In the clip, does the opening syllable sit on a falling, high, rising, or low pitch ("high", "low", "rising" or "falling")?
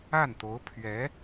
falling